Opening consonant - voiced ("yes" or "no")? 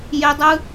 yes